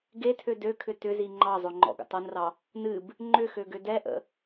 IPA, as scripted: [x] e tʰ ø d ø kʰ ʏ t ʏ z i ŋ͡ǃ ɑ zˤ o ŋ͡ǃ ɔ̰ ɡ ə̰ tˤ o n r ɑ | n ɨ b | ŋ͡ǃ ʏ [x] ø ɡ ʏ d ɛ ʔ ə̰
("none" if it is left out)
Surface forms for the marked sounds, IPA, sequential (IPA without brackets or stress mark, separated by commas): ɡ, x